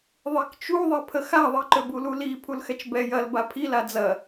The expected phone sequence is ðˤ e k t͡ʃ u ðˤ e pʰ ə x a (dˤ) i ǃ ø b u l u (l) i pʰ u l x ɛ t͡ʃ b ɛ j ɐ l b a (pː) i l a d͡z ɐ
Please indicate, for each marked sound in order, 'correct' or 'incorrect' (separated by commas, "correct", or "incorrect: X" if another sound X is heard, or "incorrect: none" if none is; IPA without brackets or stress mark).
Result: incorrect: ðˤ, correct, incorrect: pʰ